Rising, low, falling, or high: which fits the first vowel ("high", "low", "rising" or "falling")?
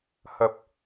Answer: low